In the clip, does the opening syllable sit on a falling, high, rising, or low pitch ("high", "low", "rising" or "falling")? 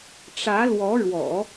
rising